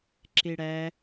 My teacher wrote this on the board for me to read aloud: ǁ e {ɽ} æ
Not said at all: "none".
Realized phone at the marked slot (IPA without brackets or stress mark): ɽ